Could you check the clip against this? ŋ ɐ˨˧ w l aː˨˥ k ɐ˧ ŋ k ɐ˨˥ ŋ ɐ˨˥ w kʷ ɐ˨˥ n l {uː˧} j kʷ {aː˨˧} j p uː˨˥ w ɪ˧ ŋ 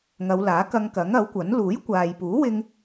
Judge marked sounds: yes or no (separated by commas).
no, no